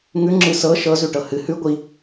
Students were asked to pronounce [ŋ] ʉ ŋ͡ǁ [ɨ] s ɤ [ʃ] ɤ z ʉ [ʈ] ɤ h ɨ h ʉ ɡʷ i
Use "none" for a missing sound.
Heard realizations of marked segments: ŋ, ɨ, ʃ, ʈ

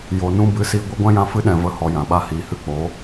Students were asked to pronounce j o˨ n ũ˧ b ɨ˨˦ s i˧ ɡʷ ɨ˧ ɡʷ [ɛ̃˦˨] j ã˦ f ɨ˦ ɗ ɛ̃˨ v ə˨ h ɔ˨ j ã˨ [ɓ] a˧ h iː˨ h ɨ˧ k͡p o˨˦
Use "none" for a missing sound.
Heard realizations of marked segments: ɛ̃˦, ɓ

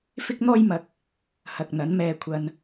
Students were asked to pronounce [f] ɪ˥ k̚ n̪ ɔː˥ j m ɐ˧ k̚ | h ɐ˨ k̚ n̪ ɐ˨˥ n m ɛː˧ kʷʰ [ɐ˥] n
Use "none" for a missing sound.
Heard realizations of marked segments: f, ɐ˧

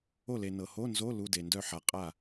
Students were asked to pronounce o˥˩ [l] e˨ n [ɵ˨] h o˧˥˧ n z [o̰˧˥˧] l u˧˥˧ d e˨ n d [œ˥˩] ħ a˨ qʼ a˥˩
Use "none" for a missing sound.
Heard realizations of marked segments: l, ɤ˨, o˧˥˧, œ˥˩

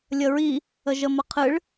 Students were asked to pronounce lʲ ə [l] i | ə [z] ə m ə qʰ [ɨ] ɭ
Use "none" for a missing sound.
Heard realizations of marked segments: ɹ, ʒ, ɨ

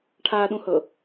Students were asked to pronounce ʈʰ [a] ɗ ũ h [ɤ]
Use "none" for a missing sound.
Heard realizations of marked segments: a, ɤ

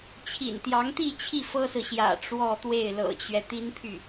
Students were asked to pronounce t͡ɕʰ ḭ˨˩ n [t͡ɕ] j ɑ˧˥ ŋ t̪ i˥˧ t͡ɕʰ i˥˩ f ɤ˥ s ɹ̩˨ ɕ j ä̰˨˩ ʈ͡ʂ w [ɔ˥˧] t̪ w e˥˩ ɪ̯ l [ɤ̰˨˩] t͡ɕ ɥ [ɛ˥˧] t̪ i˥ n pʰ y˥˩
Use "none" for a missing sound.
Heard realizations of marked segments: t̪, ɔ˥˧, ɤ̰˨˩, ɛ˦

